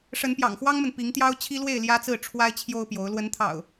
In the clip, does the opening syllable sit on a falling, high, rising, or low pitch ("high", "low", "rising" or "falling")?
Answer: rising